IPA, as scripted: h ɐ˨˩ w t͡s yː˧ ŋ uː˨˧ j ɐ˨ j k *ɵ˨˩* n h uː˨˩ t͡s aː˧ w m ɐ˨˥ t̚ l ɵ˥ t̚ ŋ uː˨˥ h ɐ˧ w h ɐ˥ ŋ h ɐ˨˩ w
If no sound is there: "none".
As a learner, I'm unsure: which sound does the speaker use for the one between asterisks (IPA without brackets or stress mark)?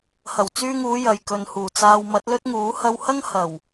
ɵ˨